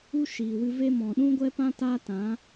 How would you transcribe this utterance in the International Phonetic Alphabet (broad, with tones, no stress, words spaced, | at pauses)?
u˦ʃiː˨wɨ˧ve˦ mɔ̃˨ɗũ˦ɡʷɛ˦pã˦ ta˦tã˨˦